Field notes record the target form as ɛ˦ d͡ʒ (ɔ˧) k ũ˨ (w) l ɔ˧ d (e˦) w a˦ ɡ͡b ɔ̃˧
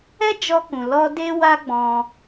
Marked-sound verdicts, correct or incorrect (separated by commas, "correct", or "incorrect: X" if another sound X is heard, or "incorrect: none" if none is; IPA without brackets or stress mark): correct, incorrect: none, correct